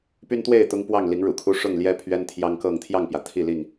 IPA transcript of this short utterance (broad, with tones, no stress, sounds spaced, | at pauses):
p y˦ n t̪ w e˥˨ ɪ̯ t̪ ʊ˦ ŋ p w ɑ˥˨ ŋ l i˨˦ ŋ ɻ ṵ˨˩ kʰ u˦ ʂ ʊ˥˨ ŋ l j ɛ˦ pʰ ɥ ɛ˦ n t̪ʰ j ɑ˦ ŋ k ɤ˥˨ ŋ t̪ʰ j ɑ˥˨ ŋ p j ä˩ t̪ʰ i˥˨ l i˥˨ ŋ